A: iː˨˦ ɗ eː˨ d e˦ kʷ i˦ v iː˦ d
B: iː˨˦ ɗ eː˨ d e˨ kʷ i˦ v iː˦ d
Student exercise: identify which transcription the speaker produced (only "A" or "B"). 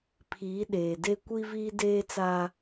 A